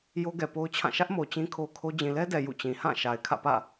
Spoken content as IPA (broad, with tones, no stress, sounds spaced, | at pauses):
j o˦ ɡ ɛ˨ p o˦ ʊ̯ t͡ɕʰ ã˦˨ ʃ ä˦ ʔ m o˨ t͡ɕ ĩ˦ kʰ o˦ kʰ o˦ d͡ʑ ĩ˨ l ɛ˦ d ɛ˨ j ṵ˦˨ t͡ɕ ĩ˨ h ã˦˨ ʃ a˨ ɪ̯ kʰ ä̰˦˨ p ä̰˦˨